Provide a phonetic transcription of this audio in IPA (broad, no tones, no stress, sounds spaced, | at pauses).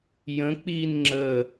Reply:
j ə̃ k͡p i n ŋ͡ǁ ə